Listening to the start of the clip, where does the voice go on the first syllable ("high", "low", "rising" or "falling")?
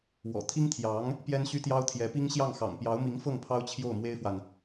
low